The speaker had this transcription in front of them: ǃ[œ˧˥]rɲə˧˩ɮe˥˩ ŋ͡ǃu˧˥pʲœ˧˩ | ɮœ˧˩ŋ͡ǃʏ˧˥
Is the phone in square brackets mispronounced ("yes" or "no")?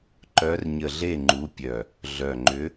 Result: no